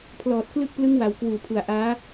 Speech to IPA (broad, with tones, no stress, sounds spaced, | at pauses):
pʰ l ɔː˨˩ t̚ k l ɯ˥˩ k̚ p l ɯ˦˥ ŋ w a˩˦ w k w uː˨˩ pʰ u˨˩ a̯ ʔ aː˦˥